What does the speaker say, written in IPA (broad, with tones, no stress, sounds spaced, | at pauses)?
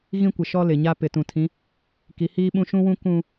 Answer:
ɣ ĩ˦ kʷ ɪ˨ ʃ ɔ˦ l ɪ˨ ɲ a˦ p ɪ˨ t ũ˨ tʰ ĩ˨˦ | k i˨˦ h iː˦ ɓ ũ˦ ʃ ũ˦ w ũ˦ k ũ˦